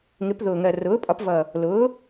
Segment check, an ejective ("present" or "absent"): present